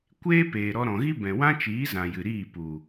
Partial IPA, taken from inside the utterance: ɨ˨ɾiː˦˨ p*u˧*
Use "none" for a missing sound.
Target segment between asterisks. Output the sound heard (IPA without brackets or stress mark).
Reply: u˨